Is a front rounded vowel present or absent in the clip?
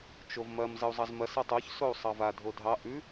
absent